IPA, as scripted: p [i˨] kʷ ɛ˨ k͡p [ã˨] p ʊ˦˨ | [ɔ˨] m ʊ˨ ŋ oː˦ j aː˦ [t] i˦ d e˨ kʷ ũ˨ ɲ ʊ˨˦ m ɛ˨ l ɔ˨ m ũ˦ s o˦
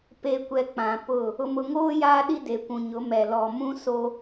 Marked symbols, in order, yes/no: no, yes, no, no

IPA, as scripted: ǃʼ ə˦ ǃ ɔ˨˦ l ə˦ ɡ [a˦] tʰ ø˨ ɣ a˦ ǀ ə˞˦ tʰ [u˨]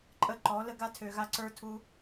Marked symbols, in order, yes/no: yes, no

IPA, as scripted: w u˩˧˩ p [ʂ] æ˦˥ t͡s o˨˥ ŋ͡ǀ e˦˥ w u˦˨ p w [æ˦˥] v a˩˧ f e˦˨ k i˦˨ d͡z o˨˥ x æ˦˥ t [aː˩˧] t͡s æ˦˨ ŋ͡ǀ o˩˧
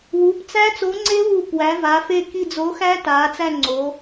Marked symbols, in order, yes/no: no, no, yes

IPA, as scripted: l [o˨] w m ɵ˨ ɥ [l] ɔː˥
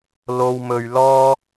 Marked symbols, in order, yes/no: yes, yes

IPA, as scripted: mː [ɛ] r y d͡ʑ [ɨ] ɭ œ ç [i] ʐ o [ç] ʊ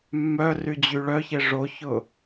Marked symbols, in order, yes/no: no, no, no, yes

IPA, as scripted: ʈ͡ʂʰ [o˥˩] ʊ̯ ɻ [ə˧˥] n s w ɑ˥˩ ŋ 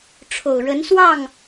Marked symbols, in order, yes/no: no, yes

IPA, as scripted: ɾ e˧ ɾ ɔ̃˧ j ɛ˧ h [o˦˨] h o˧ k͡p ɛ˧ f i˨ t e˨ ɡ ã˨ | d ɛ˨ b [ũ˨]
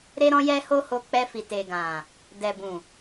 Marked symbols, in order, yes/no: no, yes

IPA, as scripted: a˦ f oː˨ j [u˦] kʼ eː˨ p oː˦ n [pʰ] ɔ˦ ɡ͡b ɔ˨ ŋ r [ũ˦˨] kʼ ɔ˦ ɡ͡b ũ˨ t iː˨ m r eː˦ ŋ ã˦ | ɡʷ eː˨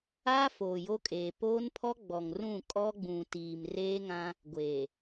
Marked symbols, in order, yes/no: no, yes, yes

